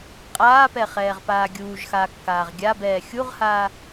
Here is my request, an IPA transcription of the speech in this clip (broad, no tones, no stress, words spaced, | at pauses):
qʼaːpɛχɛːʁpaː ɡʲuːʒxaːkːaːʁ ɡʲabɛː xʲuʁhaː